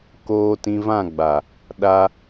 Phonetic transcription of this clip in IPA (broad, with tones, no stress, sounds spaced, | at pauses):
k oː˦ t ĩ˧ v ã˦˨ ɡ͡b a˨ | ɗ a˧